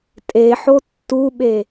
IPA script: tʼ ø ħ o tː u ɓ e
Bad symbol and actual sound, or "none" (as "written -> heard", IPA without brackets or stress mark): ø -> e